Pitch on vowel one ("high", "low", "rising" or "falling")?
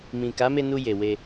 low